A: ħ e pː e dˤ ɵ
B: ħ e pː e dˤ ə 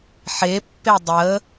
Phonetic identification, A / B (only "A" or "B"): B